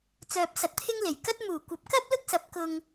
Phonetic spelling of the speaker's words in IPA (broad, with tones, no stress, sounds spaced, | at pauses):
t͡s œː˧ p̚ s ɐ˧ t̚ t̪ʰ ɪ˥ ŋ l e˨˩ j k ɐ˥ t̚ m uː˨˩ kʷ ɐ˨˥ p̚ k ɐ˥ p̚ l ʊ˥ k̚ s ɐ˨˥ p̚ k ʊ˧ ŋ